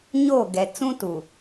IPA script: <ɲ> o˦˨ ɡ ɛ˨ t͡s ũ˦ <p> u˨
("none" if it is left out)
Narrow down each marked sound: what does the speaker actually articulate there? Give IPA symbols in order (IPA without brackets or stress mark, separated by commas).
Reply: ɲ, t